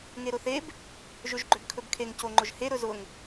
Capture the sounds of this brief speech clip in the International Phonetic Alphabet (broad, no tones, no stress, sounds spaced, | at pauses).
ŋ e ɾ ʊ θ e b | ʒ ɵ ʒ ɡ͡ǃ ø b kʰ ɵ b kʰ e ŋ c o ŋ͡ǃ ʊ ʒ h e ɾ ɵ z ʊ ŋ